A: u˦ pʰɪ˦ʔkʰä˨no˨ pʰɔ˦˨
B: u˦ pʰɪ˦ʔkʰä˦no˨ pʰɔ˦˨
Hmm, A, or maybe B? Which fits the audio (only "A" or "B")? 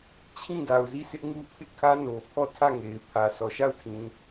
B